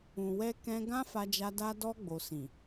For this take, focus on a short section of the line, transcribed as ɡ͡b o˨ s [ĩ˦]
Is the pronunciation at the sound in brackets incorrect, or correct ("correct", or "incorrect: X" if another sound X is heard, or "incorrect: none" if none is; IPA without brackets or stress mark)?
incorrect: ĩ˨